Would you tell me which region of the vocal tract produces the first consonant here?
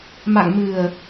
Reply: lips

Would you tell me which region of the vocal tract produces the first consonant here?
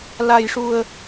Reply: tongue tip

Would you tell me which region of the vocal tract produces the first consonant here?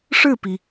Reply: retroflex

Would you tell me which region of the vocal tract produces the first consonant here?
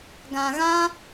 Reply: velum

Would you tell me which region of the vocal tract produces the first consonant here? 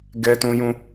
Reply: velum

